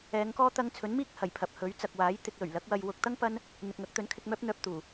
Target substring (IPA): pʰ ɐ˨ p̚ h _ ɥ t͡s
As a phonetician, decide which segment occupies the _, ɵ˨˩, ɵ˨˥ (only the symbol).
ɵ˨˥